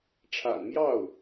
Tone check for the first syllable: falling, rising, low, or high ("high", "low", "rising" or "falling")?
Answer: low